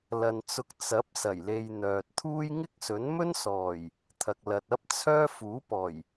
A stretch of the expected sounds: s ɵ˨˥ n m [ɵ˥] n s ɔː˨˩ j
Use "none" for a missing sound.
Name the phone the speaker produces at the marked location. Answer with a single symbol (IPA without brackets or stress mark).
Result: ɵ˥